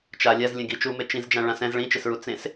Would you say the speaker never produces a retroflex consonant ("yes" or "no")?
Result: no